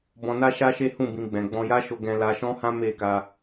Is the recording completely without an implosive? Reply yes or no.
yes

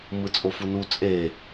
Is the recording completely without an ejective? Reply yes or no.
no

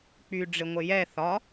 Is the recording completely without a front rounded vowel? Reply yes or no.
no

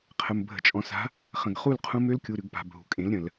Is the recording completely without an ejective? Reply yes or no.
no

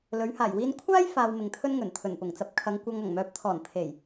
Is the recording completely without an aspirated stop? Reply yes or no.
no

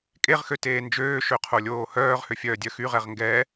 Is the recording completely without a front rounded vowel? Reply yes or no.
no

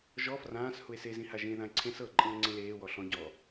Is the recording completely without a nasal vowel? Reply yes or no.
no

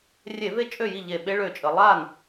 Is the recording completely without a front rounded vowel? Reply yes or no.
no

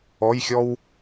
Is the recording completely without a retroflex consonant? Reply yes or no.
yes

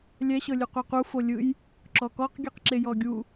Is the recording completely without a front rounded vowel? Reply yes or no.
yes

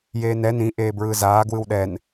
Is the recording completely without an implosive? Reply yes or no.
no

